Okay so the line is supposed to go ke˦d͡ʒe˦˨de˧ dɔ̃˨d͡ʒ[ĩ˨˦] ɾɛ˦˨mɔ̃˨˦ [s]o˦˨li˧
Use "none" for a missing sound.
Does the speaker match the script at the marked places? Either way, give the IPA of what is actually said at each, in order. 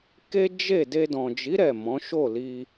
i˨˦, ʃ

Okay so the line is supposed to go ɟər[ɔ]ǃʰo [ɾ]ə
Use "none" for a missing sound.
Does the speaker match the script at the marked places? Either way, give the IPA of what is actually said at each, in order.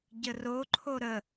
o, ɾ

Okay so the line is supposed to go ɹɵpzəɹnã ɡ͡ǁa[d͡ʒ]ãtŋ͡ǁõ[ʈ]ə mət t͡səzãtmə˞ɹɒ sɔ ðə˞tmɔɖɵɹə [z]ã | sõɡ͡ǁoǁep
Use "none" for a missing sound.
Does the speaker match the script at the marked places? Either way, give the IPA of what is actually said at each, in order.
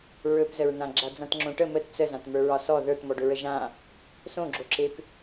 d͡z, ʈ, ʒ

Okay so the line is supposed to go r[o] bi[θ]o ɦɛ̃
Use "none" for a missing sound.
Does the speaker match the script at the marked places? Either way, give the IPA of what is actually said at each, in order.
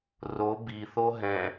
o, θ

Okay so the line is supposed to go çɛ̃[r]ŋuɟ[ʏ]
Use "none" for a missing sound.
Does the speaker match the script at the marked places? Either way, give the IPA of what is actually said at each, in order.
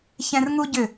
r, ʏ

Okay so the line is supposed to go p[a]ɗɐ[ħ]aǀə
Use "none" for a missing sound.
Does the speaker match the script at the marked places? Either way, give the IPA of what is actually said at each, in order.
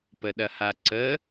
ə, h

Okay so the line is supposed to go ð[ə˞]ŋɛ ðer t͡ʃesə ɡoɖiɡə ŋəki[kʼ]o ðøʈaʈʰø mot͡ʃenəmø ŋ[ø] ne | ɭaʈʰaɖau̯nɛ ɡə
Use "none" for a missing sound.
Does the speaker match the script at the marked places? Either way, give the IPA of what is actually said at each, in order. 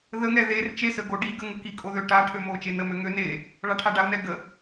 ə, kʼ, ø

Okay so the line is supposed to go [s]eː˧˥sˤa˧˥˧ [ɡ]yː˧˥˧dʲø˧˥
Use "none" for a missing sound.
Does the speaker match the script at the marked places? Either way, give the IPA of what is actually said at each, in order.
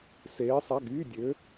s, ɡ

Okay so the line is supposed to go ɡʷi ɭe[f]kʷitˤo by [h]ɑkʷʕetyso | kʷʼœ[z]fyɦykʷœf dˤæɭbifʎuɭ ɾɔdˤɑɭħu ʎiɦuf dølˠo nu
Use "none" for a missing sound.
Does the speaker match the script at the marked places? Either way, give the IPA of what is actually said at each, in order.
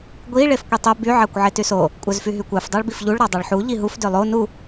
f, ʕ, z

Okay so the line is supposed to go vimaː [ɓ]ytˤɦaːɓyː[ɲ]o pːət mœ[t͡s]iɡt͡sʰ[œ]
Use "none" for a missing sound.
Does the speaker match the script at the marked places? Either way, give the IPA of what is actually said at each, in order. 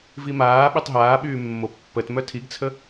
ɓ, mː, tʰ, ə

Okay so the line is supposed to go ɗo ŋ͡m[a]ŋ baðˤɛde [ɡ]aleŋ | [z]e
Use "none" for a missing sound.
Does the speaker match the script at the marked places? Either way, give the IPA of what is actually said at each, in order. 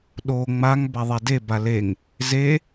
a, b, z

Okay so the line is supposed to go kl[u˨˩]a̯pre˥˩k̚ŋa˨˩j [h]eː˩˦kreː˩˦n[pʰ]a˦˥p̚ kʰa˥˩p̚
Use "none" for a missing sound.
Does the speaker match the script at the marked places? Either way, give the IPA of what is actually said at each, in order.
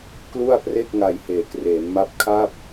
u˥˩, h, m

